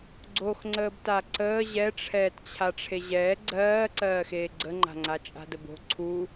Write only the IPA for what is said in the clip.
ɡ͡ǀ o x ŋ͡ǀ əː b t a ǀ əː ʑ ɛ ʈ͡ʂʰ ɛː t t͡ɕʰ a ʈ͡ʂʰ e ʑ ɛː ɡ͡ǀ ɜː ǀ ɜː x eː ɡ͡ǀ ə ŋ͡ǃ a̤ ŋ͡ǀ a t͡ʃʼ a̤ d ə b o̤ ǀʰ u

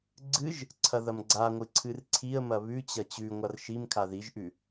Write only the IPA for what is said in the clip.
ɡ͡ǀ ɨ ʒ | ǀʰ ɐ ð ɐ m ɡ͡ǀ a ŋʷ ɨ ǀʰ ɨ r ǀʰ i ə̯ m ɐ β ʉ t͡ɕ ɐ t͡ɕ ʉ ŋʷ a r ʃ i m kʰ a ð i ʒ ʔ ʉ

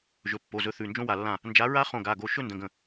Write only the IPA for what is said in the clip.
ʒ ɵ˩˧˩ pː o˩˧˩ z ɵ˨˥ θ ʉ˩˧˩ n d͡ʒ õ˦˥ w a˧˩ lː ã˥˩ | n d͡ʒ a˨˥ ɹ a˦˥ χ õ˧˩ ɡ a˩˧˩ ɡ o˧˩ ʃ ɵ˥˧ n d ə̃˩˧˩ ɡ ə̃˧˩

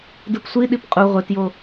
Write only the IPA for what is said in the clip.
d ɯ p sʷ i ɗ i p qʼ u ʁʷ e t j o

